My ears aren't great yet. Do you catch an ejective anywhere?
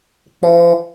no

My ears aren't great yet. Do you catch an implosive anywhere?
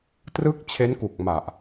no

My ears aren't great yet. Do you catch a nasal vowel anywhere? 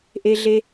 no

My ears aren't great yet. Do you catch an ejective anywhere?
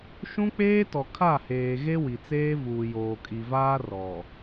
yes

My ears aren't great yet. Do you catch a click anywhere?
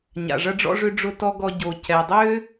no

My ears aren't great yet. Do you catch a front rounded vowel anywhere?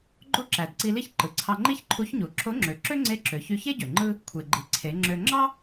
yes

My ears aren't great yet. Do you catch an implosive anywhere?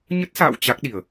yes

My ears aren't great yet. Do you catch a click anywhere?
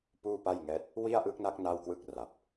no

